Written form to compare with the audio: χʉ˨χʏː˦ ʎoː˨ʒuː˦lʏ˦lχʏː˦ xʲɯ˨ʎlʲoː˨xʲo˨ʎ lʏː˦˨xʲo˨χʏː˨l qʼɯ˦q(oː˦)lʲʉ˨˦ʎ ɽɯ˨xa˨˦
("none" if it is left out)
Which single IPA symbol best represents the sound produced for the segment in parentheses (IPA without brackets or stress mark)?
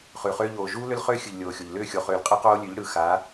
oː˦